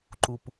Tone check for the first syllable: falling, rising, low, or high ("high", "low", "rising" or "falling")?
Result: low